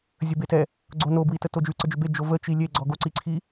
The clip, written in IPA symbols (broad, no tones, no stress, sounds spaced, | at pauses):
zʲ ə b e t ɛ | ɡ͡ǀ o n o b w i t ə t o d͡ʒ ʉ ǀ ə d͡ʒ ʏ b e d͡ʒ o v ə t͡ʃ i lʲ e ɡ͡ǀ ɔ ɡ o ǀ i ǀʰ i